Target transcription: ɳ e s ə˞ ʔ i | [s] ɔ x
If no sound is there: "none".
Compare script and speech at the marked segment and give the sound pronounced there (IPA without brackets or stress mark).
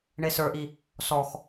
s